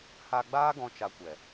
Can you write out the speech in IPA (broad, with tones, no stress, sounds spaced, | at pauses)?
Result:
h a˧ ɡ͡b aː˦ ɡ ɔ̃˧ t͡ʃ a˧ kʷ ɛ˨